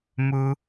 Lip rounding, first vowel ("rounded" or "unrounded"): rounded